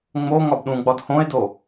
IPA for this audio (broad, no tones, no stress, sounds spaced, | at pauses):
ŋ͡m o ŋ ɒ b ɗ ũ ɡ͡b ɒ d h õ e̯ d o